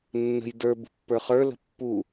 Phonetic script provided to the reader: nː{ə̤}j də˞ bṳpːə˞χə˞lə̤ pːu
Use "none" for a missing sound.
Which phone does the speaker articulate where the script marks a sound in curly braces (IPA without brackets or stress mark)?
ə̤